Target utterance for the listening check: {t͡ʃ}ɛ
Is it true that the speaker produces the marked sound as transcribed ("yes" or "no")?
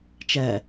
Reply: yes